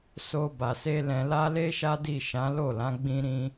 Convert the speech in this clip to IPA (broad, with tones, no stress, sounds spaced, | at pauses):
s o˧ b a˨ s e˧ l ɛ̃˧ l a˦ l e˦ ʃ a˦ d i˦˨ ʃ ã˨˦ l o˦˨ l ã˨˦ ɡ͡b ĩ˧ ɾ ĩ˧